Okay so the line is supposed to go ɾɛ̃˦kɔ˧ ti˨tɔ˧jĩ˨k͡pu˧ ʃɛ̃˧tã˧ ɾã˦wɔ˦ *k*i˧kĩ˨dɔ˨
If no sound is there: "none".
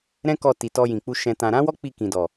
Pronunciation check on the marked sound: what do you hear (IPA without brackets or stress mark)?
k͡p